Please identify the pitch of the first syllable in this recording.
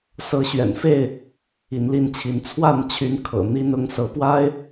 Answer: rising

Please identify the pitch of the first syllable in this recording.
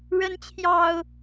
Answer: rising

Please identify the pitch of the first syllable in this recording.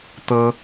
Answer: high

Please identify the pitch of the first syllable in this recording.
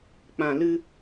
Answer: low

